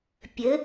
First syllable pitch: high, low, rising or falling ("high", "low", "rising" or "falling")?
rising